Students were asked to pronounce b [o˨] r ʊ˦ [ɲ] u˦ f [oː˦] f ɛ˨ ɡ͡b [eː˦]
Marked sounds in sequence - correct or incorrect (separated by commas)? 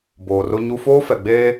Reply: incorrect, correct, correct, correct